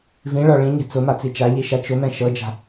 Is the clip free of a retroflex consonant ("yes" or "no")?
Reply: no